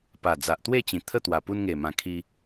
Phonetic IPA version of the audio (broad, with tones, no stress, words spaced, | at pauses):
pa˨˩ d͡za˨ʔt̪we˥˧t͡ɕĩ˨˩ t̪ʰə˥˧ t̪wa˨˩pu˧nŋe˨˩mã˨˩ kʰi˧